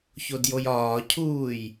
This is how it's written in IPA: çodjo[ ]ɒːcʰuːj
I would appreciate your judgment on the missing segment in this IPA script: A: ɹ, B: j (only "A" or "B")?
B